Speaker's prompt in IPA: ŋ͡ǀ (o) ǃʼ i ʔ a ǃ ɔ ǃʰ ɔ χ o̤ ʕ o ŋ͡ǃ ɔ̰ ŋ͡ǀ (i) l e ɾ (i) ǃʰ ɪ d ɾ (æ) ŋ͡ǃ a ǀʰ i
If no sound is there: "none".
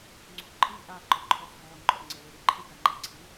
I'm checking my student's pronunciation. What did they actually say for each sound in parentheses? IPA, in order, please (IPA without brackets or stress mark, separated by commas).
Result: o̤, e, i, a